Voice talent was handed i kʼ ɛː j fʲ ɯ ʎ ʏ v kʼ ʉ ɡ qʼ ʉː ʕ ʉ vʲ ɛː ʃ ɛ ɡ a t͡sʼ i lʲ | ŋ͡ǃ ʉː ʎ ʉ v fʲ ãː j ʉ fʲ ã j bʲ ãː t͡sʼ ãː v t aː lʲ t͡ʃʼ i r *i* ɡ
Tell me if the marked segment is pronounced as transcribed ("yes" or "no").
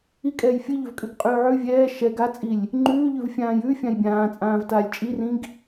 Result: no